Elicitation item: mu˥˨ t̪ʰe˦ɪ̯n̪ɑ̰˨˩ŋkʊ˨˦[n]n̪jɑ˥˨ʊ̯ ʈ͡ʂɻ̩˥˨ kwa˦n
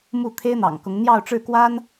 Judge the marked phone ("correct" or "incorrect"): incorrect